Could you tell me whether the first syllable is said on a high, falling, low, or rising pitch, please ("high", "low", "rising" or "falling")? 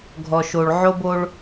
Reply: low